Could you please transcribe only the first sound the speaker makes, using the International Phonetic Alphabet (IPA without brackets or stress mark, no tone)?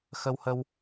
x